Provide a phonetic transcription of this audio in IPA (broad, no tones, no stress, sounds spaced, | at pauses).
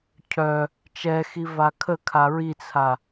cʰ œ | t͡ʃ ɛ x i v a kʰ ə kʰ a ɹ i t͡sʰ a